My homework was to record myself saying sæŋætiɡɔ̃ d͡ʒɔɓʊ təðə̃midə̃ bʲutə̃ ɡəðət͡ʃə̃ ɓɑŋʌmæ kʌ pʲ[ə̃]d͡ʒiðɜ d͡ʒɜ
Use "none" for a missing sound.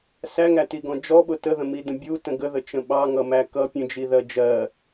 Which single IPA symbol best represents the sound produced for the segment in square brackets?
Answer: ə̃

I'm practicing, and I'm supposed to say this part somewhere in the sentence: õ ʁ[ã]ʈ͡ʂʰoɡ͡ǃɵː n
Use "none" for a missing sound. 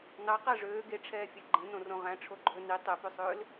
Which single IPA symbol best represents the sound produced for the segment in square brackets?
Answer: æ̃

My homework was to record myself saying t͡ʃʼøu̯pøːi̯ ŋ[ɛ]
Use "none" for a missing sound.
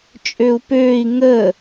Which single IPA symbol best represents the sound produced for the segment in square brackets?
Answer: ə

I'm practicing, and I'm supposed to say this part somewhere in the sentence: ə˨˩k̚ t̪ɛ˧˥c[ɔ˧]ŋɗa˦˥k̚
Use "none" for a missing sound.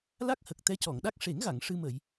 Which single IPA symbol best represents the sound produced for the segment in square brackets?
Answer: ɔ˨˩˨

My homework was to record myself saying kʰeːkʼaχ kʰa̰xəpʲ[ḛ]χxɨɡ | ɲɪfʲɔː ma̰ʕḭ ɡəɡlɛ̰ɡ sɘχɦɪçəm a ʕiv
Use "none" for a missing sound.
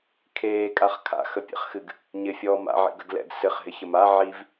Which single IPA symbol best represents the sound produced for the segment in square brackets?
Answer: ɛ̰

